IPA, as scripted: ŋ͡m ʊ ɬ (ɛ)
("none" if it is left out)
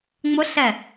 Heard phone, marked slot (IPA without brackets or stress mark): ɛ